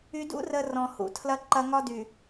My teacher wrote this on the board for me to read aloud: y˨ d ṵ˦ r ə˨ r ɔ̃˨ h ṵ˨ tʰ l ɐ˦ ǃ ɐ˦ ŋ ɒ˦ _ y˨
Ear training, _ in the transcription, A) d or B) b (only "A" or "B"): A